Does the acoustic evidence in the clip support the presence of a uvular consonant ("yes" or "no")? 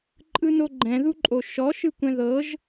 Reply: no